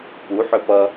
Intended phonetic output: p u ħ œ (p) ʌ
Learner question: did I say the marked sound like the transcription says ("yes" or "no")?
yes